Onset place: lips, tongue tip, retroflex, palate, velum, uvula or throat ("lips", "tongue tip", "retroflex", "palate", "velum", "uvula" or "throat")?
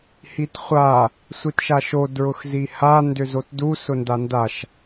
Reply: throat